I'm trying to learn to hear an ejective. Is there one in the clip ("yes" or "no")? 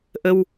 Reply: no